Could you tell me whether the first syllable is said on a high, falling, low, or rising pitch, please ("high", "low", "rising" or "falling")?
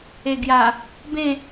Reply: low